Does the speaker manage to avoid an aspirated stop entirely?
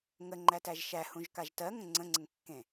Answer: yes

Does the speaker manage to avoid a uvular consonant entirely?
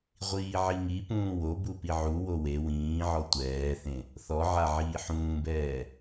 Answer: no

